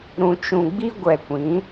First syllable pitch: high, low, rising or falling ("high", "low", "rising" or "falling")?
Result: low